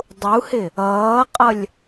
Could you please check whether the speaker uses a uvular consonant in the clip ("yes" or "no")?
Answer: yes